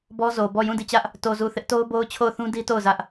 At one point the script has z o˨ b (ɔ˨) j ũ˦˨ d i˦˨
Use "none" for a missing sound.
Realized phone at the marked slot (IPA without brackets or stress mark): ɔ˦˨